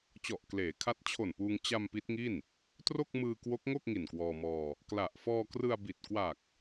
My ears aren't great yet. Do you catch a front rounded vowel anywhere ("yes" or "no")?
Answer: no